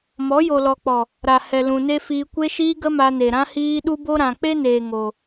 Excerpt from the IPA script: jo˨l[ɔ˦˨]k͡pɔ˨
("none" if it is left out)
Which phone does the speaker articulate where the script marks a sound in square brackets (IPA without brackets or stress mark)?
ɔ˨